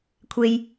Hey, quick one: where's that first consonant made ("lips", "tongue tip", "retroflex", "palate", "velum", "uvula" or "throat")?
velum